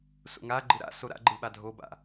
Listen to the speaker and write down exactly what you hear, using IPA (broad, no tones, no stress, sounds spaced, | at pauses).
s o̰ ŋ a ɡ͡ǃ ɯ ɾ a̰ s o ɾ a̰ ɡ͡ǃ ɯ ɓ a dʱ o b a̰